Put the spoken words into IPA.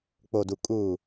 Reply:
k͡p o˨ d u˨ kʼ uː˨

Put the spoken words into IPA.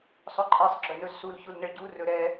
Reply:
sˤ ɵ ǃʼ e sˤ ɡ͡ǁ ɵ n ɵ z s u l ç u l n ə ɭ ɟ u r ɵ ɾ ɛ

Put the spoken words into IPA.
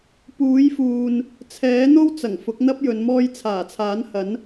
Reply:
p uː˨˥ j f uː˨ n | t͡sʰ ɛː˨˥ n̪ o˥ w t͡s ɐ˨˩ ŋ f ʊ˨˥ k̚ n̪ ɐ˥ p̚ j ɵ˨˧ n m ɔː˧ j t͡sʰ aː˨˩ t͡sʰ aː˨˥ n h ɐ˨˥ n

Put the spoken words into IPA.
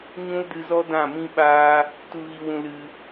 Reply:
ɲ ũ˦ l d ɨ˧ z ɔ˦ d ã˦˨ m ĩ˦ ɓ aː˦ | t u˨ ɣ i˨ w ũ˨ l ɨ˧

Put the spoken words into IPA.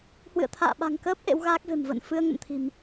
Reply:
h w ɨ̰˧˨ ə̯ t̪ʰ a̰ː˧˨ ɓ a̤˨˩ ŋ k əː˦˥ p̚ ʔ ḛ˧˥ w ɣ aː˦˥ k̚ v e̤˨˩ m v ə̰ː˧˨ n f ɨ˧ ə̯ ŋ ə̰˧˨ m t̪ʰ i̤˨˩ m

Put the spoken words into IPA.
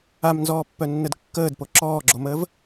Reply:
a m n z ɔː pː œ nː ə d kː əː d p o ǁ ɔː ɡ͡ǁ o m əː v

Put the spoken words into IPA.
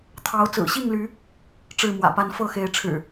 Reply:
t̪ʰ ɑ˨˦ ʊ̯ t͡s ɹ̩˨˩ ɕ i˥˨ ŋ l y˨˦ | ʈ͡ʂ ɻ̩˥˨ m w ä̰˨˩ p a˦ n f ɤ˥˨ x e˨˦ ɪ̯ ʈ͡ʂʰ ɻ̩˨˩

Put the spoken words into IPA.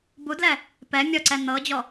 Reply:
b u d l ɛ | p ɛ mʲ ɔ ǀ ɛ n̪ ɤ d͡ʑ ɔ

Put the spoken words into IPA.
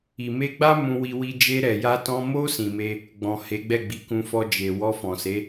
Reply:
i˨ m e˧ ɡ͡b a˦ m ũ˧ w i˧ w i˧ d͡ʒ e˧ ɾ ɛ˨ j a˧ t ɔ̃˧ m o˧ s ĩ˨ m e˧ | ɡ͡b ɔ̃˨ h e˨˦ ɡ͡b ɛ˦˨ ɡ͡b i˨˦ k ũ˧ f ɔ˧ d͡ʒ e˨ w ɔ˧ f ɔ̃˨ s e˨˦

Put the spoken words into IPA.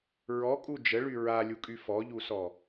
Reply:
ɹ ɔ kʼ u d͡ʒ ə ɭ y ɹ a lʲ u kʼ y f ɔ ʎ u s ɔ

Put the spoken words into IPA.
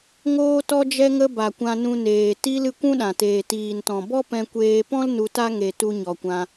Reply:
ŋ oː˧ t ɔ˧ d͡ʒ ɛ˧ ŋ ə˧ b a˨ kʷ ã˧ n ũ˧ n eː˨ t i˧ l ɨ˧ kʷ ũ˦ ɗ ã˨ t eː˨ t iː˨ n t ɔ̃˨ b ɔ˦ p ɛ̃˧ kʷ eː˧ p ɔ̃˦ l n u˧ t a˦ ŋ e˨ t u˧ ɲ ɔ˨ kʷ ã˧

